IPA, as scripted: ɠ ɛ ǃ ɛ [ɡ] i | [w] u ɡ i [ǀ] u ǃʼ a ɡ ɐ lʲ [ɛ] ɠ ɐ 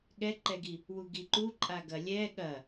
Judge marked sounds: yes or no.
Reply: yes, yes, no, yes

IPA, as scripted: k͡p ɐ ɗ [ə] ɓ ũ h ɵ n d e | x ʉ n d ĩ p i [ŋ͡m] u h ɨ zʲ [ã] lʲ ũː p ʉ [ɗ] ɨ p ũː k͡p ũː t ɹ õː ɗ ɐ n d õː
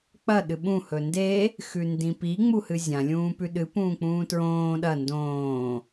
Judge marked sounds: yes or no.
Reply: no, yes, yes, yes

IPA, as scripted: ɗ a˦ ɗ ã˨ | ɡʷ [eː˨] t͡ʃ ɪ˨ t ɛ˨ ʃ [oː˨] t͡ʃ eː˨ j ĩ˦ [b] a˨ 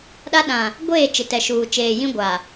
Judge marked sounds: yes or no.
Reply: no, no, no

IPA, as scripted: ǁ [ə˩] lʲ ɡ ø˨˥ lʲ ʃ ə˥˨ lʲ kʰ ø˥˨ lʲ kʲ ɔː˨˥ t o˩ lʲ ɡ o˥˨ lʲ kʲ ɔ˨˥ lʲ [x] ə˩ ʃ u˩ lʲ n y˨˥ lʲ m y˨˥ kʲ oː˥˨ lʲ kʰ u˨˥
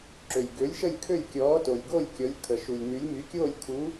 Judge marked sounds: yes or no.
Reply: no, no

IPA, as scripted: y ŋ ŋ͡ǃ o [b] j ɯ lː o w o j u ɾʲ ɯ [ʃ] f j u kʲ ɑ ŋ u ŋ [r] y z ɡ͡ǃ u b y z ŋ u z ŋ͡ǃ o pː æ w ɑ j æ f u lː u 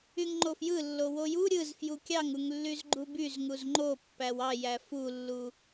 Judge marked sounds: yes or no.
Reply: no, no, no

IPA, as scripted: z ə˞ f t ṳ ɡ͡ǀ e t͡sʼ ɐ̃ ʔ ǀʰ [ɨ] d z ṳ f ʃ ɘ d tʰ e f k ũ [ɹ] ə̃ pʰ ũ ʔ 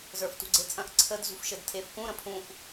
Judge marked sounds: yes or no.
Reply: no, no

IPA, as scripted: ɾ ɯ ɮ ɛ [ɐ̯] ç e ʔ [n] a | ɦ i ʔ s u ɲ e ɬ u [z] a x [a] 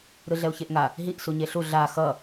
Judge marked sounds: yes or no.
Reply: no, no, no, no

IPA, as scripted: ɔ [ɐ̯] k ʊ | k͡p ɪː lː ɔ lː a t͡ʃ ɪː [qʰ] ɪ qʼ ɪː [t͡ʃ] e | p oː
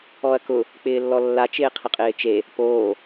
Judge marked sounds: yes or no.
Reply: yes, yes, yes

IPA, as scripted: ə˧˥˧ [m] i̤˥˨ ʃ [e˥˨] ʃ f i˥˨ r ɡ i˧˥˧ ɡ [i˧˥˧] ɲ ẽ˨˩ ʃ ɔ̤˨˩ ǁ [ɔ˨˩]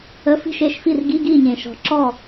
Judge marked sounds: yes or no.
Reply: no, yes, no, no

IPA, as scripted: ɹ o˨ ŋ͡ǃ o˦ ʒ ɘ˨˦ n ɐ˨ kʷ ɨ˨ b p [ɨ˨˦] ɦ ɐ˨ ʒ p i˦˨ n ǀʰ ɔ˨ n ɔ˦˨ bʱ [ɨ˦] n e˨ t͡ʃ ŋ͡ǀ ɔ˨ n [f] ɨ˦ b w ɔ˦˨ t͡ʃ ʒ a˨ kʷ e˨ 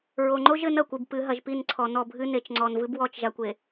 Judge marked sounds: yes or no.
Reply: yes, yes, no

